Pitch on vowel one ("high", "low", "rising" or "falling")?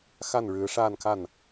falling